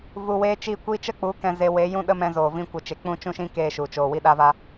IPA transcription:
v u˧ w eː˦ t͡ʃ i˦˨ kʷ iː˦ t͡ʃ ə˦ k͡p u˨˦ k ɛ̃˧ z e˧ w e˨˦ j ũ˦ ɗ ə˦ m ɛ̃˧ z oː˨ v ĩ˧ kʷ ə˨ t͡ʃ e˨ k͡p ũ˦˨ t͡ʃ ũ˦ ʃ ĩ˦ k eː˧ ʃ u˨ t͡ʃ oː˨ w i˧ ɗ a˧ v a˧

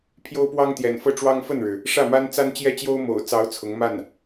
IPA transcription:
pʰ j o˥ ʊ̯ p w ɑ˥ ŋ t̪ j ɛ̰˨˩ n f ɤ˥˩ ʈ͡ʂ w ɑ˥ ŋ f ə˥˩ n ɻ ɻ̩˩ | ʂ ä˥˩ m a˥ n t͡s a˥ n t͡ɕ j ɛ˥˩ t͡ɕ j o˥ ʊ̯ m o̰˨˩ ʊ̯ t͡s ɑ˧˥ ʊ̯ t͡sʰ ʊ˧˥ ŋ m a˥˩ n

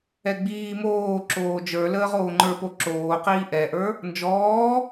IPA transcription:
ɛ ɡ͡b iː m oː ǁ oː d͡ʒ ə˞ l əː ʁ oː ŋ͡ǃ ə˞ p o ǁ oː q iː ʔ ɛ ʔ ə˞ | n d͡ʒ ɔː

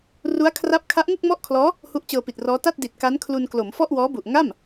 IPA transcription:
r u˦˥ a̯ kʰ r a˦˥ p̚ kʰ a˦˥ ʔ ŋ u˥˩ k̚ m ɔ˥˩ ʔ kʰ l ɔː˦˥ | h u˦˥ ʔ t͡ɕ ɤː˧ p i˨˩ t̚ r ɔː˦˥ t a˥˩ t̚ d i˨˩ t̚ k a˦˥ n kʰ l u˧ n k l o˩˦ m f ɔ˥˩ ʔ w ɔː˦˥ b u˨˩ ʔ ŋ a˥˩ m

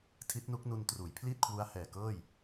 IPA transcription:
tʰ i˦˥ t̚ n u˦˥ k̚ n u˧ n t r uː˩˦ j pʰ l iː˥˩ t̚ kʰ w u˦˥ a̯ h ɛː˨˩ k ɤː˥˩ j

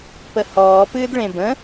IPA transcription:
p ə h ɔː p ɨː d ɭ ẽ b ə̃

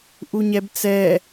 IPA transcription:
ʔ u ɲ ɛ b t͡s ɛ

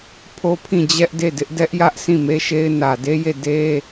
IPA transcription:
pʰ o˦ pʰ ĩ˦˨ d͡ʑ ɛ˦ ʔ d e˦˨ d ɪ˦ ʔ d ɛ˦ ʔ j ä˦ ʔ sʰ ĩ˦˨ m e˦ ʃ e˦ ɪ̯ n ä˨ d e˦ j e˦˨ d e˦

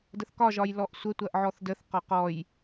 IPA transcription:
d ə θ k ɒ ʒ ɒ j l ɔ ʔ sʷ ə tʷ ɐ ʔ ʕ ɔ θ d ə θ q ɒ q ɔ j

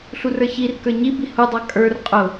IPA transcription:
ɬ u r ə˞ ç i r k ə˞ ɲ i b i h u dˤ ɑ kʼ ə˞ r qʼ ʊ

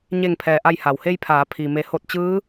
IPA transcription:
ɲ e˧˩ ŋ pʰ ɛː˩ ʔ a˧˩ j h a˩ w h e˧ j pʰ aː˩˧ pʰ i˩ m e˩˧ h o˧˩ t̚ t͡ɕ ɯː˧˥

